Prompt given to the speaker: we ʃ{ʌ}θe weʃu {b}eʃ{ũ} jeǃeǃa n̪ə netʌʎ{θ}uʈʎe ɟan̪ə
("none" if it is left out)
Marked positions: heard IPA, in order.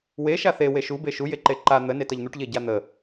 a, b, u, n̪

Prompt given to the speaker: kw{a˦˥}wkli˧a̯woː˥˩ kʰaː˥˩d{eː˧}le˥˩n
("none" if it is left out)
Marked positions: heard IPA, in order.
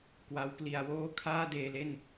a˦˥, eː˧

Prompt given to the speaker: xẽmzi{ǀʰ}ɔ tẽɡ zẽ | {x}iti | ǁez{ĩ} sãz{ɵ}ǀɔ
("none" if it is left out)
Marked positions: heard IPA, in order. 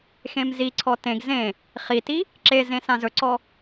ǀʰ, χ, ẽ, ɵ

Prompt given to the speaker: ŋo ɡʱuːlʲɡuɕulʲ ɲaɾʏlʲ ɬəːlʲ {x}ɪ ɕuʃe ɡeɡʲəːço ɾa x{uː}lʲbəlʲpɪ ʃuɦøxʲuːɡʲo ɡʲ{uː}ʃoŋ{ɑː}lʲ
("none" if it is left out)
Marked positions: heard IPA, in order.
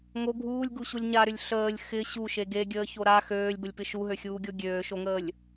x, øː, øː, əː

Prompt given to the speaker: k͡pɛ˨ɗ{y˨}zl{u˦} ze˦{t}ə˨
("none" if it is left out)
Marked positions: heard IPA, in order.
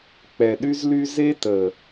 y˦, y˦, t

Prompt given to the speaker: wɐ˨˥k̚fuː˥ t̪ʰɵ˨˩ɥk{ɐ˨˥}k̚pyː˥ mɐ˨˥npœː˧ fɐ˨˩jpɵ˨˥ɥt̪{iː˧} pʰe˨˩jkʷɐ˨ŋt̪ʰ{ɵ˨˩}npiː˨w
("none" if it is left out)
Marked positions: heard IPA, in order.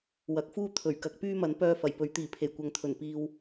ɐ˨˥, iː˨˩, ɵ˨˩

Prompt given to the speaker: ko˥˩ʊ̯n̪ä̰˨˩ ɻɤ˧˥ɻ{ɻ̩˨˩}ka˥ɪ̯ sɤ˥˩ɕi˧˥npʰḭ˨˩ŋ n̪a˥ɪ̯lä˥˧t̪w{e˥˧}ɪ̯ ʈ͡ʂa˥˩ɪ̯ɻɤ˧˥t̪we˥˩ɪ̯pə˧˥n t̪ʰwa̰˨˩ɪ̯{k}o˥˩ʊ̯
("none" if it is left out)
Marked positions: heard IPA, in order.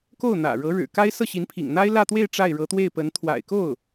ɻ̩˨˩, e˥˧, k

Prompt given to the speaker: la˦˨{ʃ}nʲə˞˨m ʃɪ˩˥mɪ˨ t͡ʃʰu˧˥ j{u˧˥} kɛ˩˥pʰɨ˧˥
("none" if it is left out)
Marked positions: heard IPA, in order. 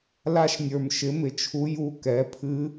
ʃ, u˧˥

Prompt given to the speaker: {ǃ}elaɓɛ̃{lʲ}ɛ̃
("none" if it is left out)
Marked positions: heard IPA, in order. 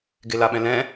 ɡ, l

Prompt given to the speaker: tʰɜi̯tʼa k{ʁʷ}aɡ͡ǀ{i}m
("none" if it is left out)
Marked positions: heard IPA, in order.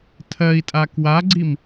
w, i

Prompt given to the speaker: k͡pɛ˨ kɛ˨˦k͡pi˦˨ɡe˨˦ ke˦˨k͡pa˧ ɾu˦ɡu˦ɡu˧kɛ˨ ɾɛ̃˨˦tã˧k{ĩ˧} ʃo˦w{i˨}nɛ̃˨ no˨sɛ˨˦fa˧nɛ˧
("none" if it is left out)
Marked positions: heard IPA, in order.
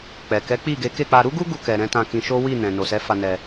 ĩ˧, i˦˨

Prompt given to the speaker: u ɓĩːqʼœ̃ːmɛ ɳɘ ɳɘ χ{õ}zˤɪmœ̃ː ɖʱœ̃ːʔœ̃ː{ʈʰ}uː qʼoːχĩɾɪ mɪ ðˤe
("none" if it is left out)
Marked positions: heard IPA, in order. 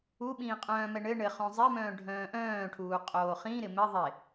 õ, ʈʰ

